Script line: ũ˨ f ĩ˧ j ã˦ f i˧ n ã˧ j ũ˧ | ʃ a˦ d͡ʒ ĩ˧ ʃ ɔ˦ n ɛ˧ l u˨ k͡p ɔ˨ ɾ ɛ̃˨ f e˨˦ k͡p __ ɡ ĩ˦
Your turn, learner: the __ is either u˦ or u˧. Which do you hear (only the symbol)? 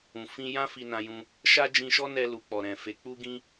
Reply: u˦